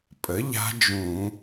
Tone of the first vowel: rising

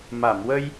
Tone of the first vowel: low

